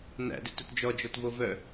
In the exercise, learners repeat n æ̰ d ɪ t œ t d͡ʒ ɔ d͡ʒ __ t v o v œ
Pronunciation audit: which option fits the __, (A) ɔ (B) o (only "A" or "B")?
A